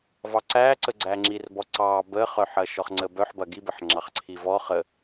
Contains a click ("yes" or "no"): yes